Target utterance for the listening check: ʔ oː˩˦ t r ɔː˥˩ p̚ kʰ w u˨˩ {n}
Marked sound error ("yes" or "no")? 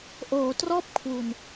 no